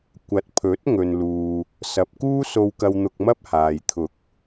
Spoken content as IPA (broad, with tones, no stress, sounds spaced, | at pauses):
kʷ ɐ˨ t̚ pʰ ɵ˨˥ t̚ ŋ ɵ˨ n l uː˨ | s ɐ˨ p̚ k uː˥ s o˧ w k ɐ˧ w n̪ ʊ˧ k̚ m ɐ˥ p̚ h aː˨ j t̪ʰ ʊ˨˥ k̚